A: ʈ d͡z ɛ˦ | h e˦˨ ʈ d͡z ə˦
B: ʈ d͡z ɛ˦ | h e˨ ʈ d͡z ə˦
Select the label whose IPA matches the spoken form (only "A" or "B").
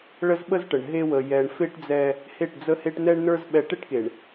A